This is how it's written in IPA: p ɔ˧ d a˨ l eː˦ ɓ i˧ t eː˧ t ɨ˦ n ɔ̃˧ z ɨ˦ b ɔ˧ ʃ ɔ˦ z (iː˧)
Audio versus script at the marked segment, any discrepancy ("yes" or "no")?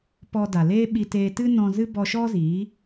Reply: yes